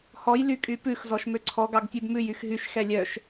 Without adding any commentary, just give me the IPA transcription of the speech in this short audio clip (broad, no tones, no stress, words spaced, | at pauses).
hɔj lykʼypʉx zɔʃmøǀʰɔ ɡɑɡtʲʉbmʉj yxɦyʃ xɛlʲœʃ